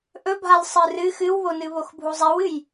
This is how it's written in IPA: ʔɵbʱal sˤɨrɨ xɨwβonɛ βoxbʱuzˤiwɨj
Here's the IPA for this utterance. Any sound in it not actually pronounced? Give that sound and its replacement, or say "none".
ɛ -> ɨ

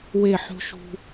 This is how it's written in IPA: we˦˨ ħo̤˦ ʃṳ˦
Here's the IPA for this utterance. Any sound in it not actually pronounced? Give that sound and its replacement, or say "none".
none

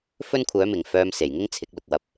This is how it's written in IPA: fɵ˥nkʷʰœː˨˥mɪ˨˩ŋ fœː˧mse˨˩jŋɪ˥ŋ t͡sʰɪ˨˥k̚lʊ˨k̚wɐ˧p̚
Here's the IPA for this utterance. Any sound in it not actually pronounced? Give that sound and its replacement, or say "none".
none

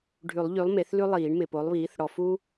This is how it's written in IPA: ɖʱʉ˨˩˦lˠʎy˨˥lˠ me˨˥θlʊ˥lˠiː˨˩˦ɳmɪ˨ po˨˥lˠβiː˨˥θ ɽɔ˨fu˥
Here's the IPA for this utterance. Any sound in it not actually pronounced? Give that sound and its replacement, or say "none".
ʊ˥ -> ʉ˥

